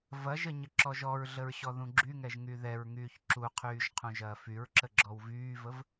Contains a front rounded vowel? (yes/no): yes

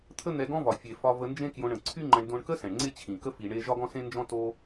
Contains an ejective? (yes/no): no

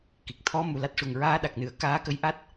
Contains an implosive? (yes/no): yes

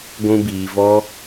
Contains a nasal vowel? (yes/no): yes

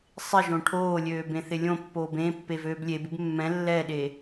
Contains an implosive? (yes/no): yes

